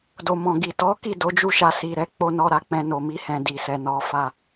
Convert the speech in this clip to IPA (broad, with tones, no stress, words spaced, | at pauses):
do˨mɔ̃˨ɡi˨ tɔ˨˦ki˦˨ do˨˦d͡ʒu˦˨ʃa˧ si˨ɾɛ˨˦ k͡po˦nɔ˦ɾa˦˨ k͡pɛ̃˧no˨mi˧hɛ̃˨ di˨sɛ˨nɔ˨˦fa˧